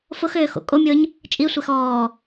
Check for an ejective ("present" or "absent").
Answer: present